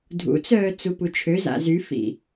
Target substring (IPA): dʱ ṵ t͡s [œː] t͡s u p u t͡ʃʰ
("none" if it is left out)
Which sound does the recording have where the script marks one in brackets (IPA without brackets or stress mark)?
œː